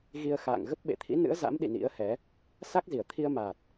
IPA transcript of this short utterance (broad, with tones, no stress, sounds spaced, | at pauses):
ɣ i˧ ə̯ x a̰ː˧˨ ŋ ɣ ə˦˥ p̚ ɓ ḛ˧˨ t̪ʰ ḭ˧˥ n ɨ̰˧˥ ə̯ z a̰˧˥ m ɗ ḭ˧˨ n ḭ˧˥ ə̯ h ɛ˨˦ | s a˦˥ k̚ z i˧˩ ə̯ t̪ʰ i˧ ə̯ m aː˨˩ t̚